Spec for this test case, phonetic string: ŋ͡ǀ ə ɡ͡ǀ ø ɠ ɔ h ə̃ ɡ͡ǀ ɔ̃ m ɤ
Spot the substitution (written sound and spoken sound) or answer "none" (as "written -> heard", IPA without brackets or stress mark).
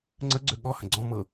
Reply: none